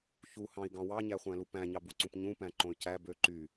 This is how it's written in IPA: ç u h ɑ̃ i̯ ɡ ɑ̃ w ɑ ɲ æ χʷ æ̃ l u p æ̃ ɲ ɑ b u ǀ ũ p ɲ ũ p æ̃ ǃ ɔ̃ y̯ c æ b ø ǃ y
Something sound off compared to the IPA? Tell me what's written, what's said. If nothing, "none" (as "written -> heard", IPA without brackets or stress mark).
ɔ̃ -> õ